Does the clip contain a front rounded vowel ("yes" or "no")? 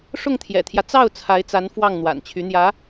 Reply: yes